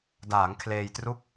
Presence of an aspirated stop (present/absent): present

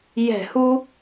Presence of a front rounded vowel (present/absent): absent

